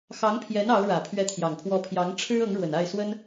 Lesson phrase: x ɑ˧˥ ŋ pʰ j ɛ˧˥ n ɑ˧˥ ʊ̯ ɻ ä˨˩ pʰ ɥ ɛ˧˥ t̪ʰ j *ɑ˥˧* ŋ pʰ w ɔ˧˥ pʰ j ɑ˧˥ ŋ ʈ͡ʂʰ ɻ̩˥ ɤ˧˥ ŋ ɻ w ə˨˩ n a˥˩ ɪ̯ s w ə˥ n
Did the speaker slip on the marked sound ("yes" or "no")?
yes